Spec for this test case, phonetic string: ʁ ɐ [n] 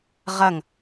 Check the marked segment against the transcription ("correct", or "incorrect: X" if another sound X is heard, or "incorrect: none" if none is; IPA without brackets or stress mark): incorrect: ŋ